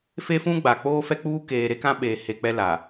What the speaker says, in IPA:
f e˦ f ũ˦ ɡ͡b a˨ k͡p oː˦ f ɛ˦ k͡p uː˦ k eː˨ ɾ e˦ k ã˦ ɓ eː˨ h e˨ k͡p ɛ˦ l a˨

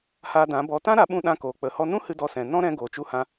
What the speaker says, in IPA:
h aː˧ d ã˨˦ b ɔ˧ t ã˦ ɾ a˨˦ ɓ ũ˧ ɗ ã˧ k oː˨ k͡p ə˨ h ɔ˧ n ũ˦ h ɨ˧ d ɔ˧ s ɛ̃˨ n ɔ̃˦ ɾ ɛ̃˧ ɡ oː˨ t͡ʃ u˧ h ã˧

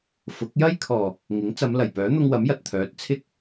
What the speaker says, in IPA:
f ʊ˨˥ k̚ j ɐ˥ j kʰ ɔː˨˩ | ŋ ɪ˨˥ ŋ t͡s ɐ˨˧ m l ɐ˨˩ j p œː˨˥ n̪ ʊ˧ ŋ w ɐ˨˥ m j ɐ˨ t̚ t̪ʰ œː˨˥ t̚ t͡sʰ ɪ˧ k̚

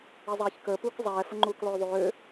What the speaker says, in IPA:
e zˤ ɛː ç k əː p uː k zˤ ɛː f ə ŋ͡ǃ uː k lˠ øː ðˤ øː

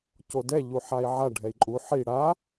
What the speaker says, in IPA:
c o d ɛ ʎ u ħ a i̯ ʕ a ɖʱ ɛ i̯ ǃʼ u ħ i ɽ a

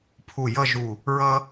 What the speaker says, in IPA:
pʰ u˧˩ j ʌ˥˧ ʒ u˧˩ | ɹ ʌ˥

